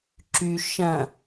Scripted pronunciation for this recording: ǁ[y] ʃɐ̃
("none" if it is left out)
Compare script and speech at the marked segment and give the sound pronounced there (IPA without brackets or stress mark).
y